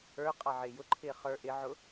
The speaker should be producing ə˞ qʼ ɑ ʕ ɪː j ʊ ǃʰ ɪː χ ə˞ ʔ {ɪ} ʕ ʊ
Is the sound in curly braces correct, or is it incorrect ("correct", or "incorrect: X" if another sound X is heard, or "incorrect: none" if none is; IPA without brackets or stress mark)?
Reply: correct